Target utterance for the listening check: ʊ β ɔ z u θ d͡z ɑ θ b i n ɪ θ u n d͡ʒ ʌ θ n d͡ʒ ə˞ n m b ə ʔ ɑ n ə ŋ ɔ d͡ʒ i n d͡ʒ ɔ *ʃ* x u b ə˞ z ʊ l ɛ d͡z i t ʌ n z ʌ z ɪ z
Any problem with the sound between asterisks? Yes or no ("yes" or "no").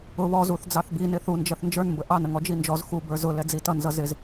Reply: yes